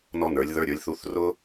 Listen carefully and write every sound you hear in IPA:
n ɔ˥ n ə˞˩˥ lʲ ð ə˞˧˥˧ ɾʲ ə˞˩˥ lʲ θ u˧˥˧ θ r ʊ˥

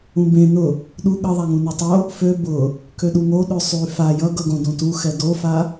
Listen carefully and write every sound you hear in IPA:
ũ b ẽ n ʊ | ɗ u ɠ ʌ ðˤ a ŋ ũ n ø tˤ o | f ø b ʊ | k ø ɗ u ŋ o ɗ ø sˤ y f a j ʌ ɡ ʌ ɡ õ d ũ t u x ɛ d o f a

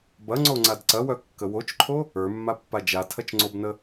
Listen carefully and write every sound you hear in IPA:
b ɐ ŋ͡ǀ o ŋ͡ǀ a d ǀ ɐ w œ kː ə w o t͡ʃ ǃʰ o | ə˞ mː a pː a d͡ʒ a tʰ ɐ t͡ʃ ŋ͡ǀ o b n ə

